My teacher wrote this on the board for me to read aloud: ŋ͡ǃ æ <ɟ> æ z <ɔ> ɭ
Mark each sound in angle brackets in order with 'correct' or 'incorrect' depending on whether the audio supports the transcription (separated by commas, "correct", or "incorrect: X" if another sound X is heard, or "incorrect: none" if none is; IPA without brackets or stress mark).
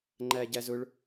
correct, incorrect: ʊ